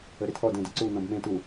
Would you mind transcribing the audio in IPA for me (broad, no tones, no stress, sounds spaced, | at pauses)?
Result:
ə ɾ ɪ tʰ ɔ d ẽ d ə ǀ u n ɔ̃ b m ẽ t u